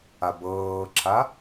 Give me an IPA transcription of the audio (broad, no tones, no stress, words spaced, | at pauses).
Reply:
abɤːǁʰa